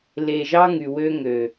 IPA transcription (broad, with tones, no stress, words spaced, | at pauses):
le˨ʒɑ˦ ŋy˨wø˦ŋø˨